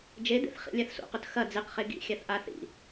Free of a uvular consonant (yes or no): no